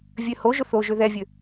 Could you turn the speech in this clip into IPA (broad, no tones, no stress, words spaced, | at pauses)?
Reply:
vʲøhoʒʊ θoʒø ðɛvʲø